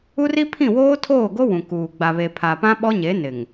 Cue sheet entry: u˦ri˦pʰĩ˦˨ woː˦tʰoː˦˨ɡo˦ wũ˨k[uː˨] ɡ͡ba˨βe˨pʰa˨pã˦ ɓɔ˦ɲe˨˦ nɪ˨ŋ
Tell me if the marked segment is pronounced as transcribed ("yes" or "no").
yes